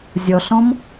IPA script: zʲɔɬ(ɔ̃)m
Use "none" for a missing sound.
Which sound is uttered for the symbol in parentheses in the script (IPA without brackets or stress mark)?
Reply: ɔ̃